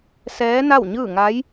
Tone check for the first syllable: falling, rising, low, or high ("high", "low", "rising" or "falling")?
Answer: rising